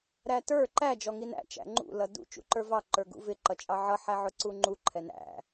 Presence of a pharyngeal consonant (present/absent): present